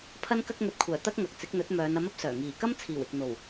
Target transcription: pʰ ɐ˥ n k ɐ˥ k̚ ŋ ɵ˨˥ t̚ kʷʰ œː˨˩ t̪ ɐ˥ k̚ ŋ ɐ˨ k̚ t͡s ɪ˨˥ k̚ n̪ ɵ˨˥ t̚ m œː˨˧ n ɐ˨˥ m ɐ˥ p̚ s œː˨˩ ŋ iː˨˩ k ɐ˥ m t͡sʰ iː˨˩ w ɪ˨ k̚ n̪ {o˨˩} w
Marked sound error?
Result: no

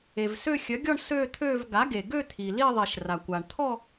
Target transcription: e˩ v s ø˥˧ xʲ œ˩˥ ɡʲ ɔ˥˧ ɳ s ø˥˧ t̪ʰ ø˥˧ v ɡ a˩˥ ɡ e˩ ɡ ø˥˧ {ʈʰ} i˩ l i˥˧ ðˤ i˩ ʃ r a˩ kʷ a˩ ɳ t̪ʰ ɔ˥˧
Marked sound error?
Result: yes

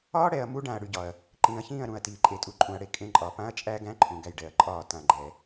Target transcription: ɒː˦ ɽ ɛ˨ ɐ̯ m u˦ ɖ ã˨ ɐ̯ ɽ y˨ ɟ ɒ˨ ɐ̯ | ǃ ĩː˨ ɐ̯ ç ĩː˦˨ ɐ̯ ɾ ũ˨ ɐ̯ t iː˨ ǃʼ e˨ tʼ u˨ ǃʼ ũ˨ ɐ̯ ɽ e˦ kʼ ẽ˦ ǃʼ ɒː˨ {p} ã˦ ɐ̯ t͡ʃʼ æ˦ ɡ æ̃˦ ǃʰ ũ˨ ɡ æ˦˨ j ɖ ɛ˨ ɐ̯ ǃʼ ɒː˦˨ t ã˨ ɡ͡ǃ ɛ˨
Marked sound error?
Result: no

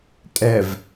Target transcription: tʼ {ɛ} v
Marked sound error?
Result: no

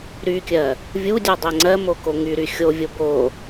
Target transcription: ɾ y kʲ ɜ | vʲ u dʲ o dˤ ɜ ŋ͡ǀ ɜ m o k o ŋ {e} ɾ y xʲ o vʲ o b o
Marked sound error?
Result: yes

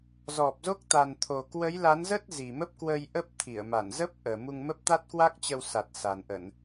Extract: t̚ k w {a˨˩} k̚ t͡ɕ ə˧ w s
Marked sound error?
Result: yes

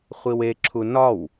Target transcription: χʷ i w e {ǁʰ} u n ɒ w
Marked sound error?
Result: no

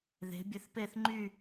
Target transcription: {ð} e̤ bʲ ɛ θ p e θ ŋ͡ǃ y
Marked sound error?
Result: no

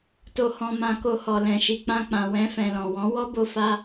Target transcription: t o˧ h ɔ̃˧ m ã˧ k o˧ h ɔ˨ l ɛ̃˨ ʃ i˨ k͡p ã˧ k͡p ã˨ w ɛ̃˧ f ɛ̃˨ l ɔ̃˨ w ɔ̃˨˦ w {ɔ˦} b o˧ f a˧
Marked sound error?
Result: no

